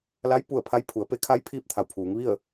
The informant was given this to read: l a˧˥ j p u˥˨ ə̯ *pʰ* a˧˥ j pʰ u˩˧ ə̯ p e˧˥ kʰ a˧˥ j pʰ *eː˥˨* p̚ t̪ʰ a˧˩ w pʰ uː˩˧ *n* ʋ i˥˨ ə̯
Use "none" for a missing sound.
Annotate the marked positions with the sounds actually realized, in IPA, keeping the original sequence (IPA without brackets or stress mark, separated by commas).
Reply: pʰ, iː˥˨, ŋ